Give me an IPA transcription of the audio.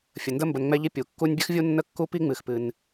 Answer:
fʲ ə˩ n d ə˦ m b ə˨ n ŋ͡m ɛ˦ ʎ i˦ pʲ u˩ kː u˦ nʲ bʲ ɨ˥ x vʲ u˥ nː ə˥ kː u˥ p i˥ ŋ͡m ɨ˨ x p ɨ˨ n

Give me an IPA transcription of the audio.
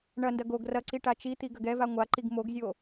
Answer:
ɳ ɐ n d ɐ ɡ o ɡ r ɐ ǀ i ʈ a t͡ʃ i t̪ i ɡ ɐ ɡ ɛ v a ŋʷ a ǃ i ɡ m o ɡ zʲ o

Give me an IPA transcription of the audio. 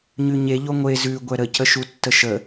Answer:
ɲ ʉ ɲ e ʎ o ŋʷ e z ʉ ɡʷ ɛ ɾ ə c ə ʃ u tː ə ʃ ə

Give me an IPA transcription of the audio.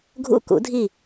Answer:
ɡʱ ṵ˦˨ k ṵ˩˥ dʱ i˦˨

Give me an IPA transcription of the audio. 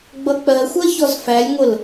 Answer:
ɡ͡b ʌ k͡p ɜ xʷ ɜ ç ɔ z f æ lʲ ŋʷ ə l

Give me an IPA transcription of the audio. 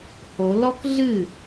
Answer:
h o l ɔ k ɮ ɨ

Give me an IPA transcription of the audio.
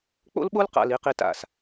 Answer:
k͡p o̰˦ l ɓ o˦ l q a̰˨ l i˨ q i˨ t a̰˨ s

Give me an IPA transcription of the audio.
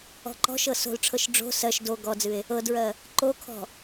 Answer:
ɔ̤ ǃ ɔ̤ ʃ ɤ s o̤ l ʈ͡ʂʰ ɤ ʃ ɖ͡ʐ o̤ s ɜ ʃ d o ɡ ɔ d͡z ɨ e̯ | ɤ d ɹ ɜ | ǃ o kʰ ɔ̤

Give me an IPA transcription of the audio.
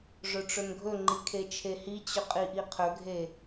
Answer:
ʐ ɵ ʈ͡ʂ ɵ n ɡʱ ɵ ŋ͡ǃ i kʰ e t͡ʃʰ e h i t͡ɕ ɵ qʼ i ʔ i qʰ ɵ ɡʱ e

